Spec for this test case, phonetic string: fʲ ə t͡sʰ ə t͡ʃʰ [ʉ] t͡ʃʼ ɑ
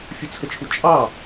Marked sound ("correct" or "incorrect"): incorrect